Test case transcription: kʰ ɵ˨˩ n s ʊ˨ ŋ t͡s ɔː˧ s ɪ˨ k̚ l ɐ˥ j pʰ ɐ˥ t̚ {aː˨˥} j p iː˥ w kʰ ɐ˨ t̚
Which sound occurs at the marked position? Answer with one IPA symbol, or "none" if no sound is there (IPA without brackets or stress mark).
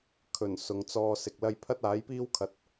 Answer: aː˨˥